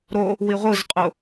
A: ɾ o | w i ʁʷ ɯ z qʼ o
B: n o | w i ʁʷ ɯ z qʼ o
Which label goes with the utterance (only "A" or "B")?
A